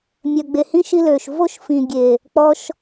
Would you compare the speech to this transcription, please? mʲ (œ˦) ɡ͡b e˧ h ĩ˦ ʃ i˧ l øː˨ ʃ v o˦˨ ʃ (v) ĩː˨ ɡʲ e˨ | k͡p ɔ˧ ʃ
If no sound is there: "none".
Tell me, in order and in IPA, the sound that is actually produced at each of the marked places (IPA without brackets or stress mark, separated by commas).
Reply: œ˧, f